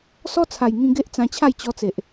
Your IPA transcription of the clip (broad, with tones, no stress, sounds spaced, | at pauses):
s ɔ˦ t͡sʰ a˨˩ j ŋ ĩ˧ ɡ e˦ ʔ t͡s ã˧ t͡ɕʰ a˥˧ j t͡ɕ ɔ˧ t͡s e˨ ʔ